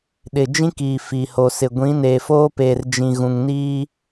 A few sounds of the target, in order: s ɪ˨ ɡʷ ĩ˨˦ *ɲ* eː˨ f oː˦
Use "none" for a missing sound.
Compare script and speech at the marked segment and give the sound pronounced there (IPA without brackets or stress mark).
n